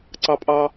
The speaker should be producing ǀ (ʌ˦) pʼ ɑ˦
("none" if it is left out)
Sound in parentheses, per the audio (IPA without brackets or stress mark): ɑ˦